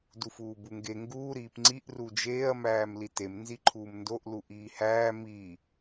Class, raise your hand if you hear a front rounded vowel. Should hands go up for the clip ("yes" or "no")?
no